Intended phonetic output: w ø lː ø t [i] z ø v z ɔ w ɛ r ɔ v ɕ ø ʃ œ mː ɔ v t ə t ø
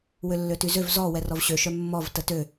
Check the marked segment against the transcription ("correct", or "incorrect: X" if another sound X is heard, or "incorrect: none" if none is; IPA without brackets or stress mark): incorrect: y